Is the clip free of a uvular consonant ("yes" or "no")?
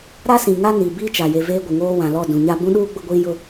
yes